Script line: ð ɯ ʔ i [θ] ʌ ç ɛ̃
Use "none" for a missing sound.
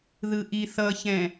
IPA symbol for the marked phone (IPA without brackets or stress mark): θ